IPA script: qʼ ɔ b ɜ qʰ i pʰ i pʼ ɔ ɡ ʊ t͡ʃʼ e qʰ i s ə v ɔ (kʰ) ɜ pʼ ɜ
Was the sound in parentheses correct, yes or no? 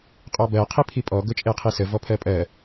no